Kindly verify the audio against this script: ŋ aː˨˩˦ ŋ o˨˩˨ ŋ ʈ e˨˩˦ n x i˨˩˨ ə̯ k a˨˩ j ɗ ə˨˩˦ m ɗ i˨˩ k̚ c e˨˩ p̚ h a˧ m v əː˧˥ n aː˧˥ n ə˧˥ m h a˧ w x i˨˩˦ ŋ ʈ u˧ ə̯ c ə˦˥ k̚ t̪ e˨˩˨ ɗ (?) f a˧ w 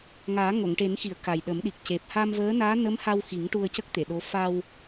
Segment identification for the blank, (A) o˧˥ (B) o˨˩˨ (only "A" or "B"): A